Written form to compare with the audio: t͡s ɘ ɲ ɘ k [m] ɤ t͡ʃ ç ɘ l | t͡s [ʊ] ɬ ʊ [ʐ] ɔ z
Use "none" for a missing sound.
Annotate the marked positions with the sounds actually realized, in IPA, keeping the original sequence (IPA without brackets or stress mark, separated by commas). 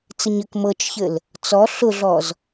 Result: m, ɔ, ɮ